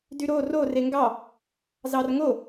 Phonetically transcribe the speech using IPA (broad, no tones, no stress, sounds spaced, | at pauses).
d y ɾ o r o r e ŋ ɡ ɑ | z ɑ r ŋ o